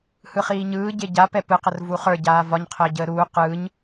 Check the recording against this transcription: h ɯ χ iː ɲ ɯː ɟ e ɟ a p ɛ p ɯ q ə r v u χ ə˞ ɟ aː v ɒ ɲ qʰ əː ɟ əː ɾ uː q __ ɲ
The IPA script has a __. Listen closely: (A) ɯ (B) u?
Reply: A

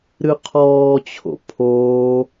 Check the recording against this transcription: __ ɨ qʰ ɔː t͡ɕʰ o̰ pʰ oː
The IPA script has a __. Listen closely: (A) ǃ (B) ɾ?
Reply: B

